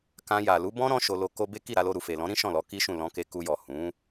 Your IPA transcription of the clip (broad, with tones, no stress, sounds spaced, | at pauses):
k ã˧ j a˨ l u˨˦ b ɔ̃˦ ɾ ɔ̃˦ ʃ o˧ l o˧ k o˧ b e˦ k i˦˨ ɾ a˧ l o˧ ɾ u˨ f e˨ l ɔ̃˨˦ ɾ ĩ˦ ʃ ɔ̃˦˨ l ɔ˨˦ k i˦ ʃ ũ˦˨ l ɔ̃˧ k e˧ k u˧ j ɔ˨ h ũ˨˦